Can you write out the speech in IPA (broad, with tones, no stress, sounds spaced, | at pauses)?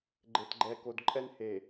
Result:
ɡ͡ǃ e˨ t ɡ͡ǃ ɛ˨ k o˨ d ǃʼ ɛ˦ n h e˨